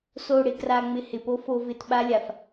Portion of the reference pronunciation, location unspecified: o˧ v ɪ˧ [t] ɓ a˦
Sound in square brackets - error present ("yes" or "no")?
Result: no